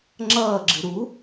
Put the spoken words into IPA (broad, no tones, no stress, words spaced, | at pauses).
ŋ͡ǁʌːɡ͡ǁɨ ɾu